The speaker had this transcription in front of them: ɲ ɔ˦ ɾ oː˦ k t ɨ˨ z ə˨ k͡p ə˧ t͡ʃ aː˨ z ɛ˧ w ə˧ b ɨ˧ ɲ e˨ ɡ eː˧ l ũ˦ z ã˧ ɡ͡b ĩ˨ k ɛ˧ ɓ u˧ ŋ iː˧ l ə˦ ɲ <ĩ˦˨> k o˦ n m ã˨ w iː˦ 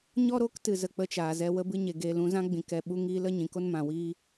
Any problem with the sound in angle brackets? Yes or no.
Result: yes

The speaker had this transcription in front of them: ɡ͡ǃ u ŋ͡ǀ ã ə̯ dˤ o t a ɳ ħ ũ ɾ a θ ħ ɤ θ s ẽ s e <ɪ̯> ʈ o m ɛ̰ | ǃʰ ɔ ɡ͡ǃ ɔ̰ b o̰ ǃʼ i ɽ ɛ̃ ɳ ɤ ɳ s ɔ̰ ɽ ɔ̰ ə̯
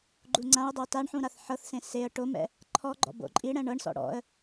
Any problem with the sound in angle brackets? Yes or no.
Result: yes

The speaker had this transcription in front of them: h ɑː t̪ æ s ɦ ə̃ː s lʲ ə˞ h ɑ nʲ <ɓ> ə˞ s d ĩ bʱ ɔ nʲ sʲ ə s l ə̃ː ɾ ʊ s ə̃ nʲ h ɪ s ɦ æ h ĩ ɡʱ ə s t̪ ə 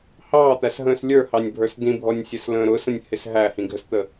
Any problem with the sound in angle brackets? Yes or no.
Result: yes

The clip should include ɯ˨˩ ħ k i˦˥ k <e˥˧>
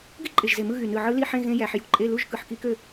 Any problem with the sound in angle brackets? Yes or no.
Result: yes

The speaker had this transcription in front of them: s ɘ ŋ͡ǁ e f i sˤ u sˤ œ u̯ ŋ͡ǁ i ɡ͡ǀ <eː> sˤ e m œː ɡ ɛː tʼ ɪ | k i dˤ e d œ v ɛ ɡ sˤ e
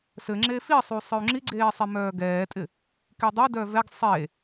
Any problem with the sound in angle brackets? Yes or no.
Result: no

